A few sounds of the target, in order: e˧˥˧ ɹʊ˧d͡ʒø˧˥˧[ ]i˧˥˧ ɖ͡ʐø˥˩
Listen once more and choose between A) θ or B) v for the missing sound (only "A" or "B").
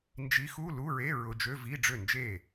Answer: B